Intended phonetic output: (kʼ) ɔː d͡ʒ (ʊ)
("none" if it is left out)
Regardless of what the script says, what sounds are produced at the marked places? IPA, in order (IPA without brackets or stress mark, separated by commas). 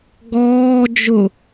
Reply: ɡ, ʊ